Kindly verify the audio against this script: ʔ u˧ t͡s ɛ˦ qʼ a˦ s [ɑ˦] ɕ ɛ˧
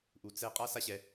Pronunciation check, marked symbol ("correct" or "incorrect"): incorrect